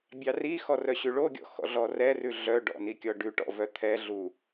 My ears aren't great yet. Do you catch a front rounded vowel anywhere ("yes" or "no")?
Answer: yes